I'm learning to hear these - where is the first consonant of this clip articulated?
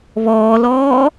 lips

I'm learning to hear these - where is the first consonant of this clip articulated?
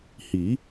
throat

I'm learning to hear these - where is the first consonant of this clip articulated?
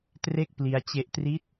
tongue tip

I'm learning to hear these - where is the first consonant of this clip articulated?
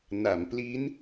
tongue tip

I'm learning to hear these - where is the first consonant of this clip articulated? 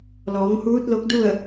tongue tip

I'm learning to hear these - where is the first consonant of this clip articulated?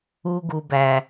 velum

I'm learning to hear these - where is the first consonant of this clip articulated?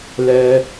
tongue tip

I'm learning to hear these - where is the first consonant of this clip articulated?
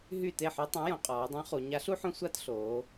throat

